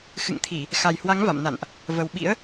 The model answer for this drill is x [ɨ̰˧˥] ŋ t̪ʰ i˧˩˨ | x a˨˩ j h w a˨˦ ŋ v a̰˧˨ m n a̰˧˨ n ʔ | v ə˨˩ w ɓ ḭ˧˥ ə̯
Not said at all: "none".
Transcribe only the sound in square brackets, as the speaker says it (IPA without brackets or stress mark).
ɨ̰˧˨